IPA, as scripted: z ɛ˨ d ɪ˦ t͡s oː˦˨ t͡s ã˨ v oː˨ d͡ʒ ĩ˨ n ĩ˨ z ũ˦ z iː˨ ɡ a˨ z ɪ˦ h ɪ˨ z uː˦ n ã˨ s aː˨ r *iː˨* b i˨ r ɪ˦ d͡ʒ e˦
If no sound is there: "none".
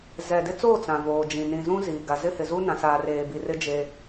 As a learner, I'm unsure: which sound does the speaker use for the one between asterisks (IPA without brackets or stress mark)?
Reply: eː˨